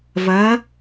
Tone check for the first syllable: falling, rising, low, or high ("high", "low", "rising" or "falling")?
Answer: rising